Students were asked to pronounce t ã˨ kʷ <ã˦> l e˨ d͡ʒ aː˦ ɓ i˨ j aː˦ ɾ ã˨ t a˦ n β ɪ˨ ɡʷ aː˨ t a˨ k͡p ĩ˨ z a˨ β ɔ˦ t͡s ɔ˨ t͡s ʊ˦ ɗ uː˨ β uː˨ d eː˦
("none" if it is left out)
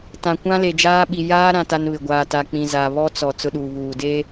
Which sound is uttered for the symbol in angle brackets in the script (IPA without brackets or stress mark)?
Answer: ã˦